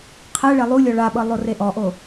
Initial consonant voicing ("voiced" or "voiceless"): voiceless